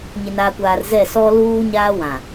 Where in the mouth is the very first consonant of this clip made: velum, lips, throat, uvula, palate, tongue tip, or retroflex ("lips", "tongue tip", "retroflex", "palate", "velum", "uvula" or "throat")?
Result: palate